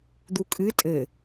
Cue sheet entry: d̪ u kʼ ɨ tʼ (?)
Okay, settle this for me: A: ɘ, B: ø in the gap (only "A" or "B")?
A